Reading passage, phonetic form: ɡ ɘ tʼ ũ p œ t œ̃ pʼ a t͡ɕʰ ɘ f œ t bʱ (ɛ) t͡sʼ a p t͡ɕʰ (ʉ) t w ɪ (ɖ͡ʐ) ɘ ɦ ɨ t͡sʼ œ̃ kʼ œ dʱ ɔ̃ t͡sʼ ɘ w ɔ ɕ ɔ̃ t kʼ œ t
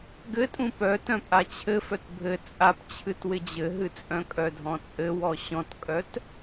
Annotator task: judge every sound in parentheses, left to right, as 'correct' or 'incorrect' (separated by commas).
incorrect, incorrect, incorrect